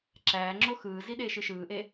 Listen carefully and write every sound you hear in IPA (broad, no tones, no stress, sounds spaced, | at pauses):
ǁ æː ŋ͡ǁ o x ɯː z i ɗ eː ʃ ɯ ʃ ɯː ʔ e